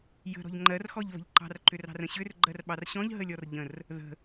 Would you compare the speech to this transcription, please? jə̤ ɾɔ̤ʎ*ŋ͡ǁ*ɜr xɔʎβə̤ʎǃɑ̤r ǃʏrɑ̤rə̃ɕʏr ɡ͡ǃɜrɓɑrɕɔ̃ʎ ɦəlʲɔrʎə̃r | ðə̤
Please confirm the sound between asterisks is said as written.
no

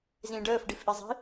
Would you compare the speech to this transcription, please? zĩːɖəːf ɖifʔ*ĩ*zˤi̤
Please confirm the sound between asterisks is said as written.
no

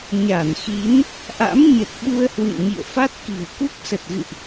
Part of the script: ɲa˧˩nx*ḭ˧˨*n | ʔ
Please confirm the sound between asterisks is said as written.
no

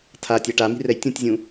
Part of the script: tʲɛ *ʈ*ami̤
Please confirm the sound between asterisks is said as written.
yes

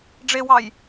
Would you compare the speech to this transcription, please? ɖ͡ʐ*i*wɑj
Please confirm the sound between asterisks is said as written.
no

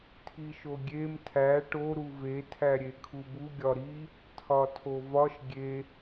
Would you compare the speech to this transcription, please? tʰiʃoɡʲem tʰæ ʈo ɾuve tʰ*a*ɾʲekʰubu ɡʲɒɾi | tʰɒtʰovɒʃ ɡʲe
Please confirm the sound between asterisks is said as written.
no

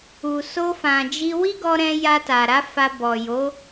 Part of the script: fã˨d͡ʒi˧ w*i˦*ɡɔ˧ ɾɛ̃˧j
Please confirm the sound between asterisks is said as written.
yes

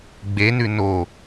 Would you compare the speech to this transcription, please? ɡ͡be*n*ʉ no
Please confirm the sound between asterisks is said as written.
yes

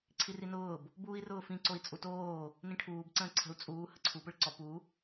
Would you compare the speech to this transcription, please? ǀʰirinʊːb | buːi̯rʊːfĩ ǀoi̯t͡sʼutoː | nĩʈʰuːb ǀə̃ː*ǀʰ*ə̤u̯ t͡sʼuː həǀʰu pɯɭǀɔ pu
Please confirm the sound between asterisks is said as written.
yes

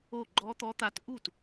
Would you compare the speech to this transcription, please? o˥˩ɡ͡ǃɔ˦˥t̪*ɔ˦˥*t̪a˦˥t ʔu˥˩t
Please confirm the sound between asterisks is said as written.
yes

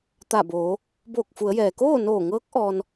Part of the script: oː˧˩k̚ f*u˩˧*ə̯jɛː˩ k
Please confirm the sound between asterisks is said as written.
yes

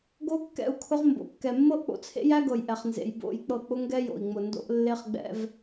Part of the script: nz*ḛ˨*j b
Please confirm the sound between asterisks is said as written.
yes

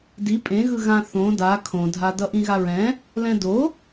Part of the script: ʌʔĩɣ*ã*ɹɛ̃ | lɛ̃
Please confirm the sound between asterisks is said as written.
no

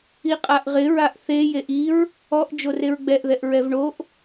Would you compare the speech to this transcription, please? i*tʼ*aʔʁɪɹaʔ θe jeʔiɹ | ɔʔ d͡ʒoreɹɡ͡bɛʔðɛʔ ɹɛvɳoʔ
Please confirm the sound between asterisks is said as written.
no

